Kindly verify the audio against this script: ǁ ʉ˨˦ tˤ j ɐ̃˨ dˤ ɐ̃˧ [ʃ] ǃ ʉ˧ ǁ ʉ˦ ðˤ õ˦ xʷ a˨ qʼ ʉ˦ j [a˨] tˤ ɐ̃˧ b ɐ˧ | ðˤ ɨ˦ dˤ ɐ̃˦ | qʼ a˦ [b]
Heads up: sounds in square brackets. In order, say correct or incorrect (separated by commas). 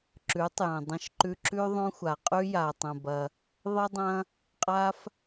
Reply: correct, correct, incorrect